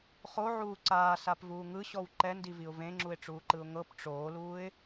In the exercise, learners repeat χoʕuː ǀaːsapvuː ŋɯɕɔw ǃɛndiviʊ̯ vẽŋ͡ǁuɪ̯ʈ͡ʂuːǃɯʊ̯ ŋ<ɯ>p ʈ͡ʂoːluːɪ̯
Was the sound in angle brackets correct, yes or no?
no